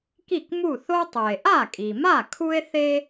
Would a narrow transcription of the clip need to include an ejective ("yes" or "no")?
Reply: yes